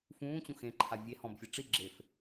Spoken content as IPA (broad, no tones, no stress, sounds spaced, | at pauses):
f ũː t͡ɕ ũ x ẽ ǃʰ a vʲ e h ɔ̃ b fʲ e ʈ͡ʂ i ɡ͡ǁ e f